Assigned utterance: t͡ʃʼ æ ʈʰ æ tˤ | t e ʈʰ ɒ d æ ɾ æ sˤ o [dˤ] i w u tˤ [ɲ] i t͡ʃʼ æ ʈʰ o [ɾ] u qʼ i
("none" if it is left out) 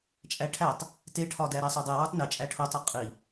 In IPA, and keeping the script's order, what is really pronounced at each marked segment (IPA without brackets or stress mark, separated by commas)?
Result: dˤ, n, tˤ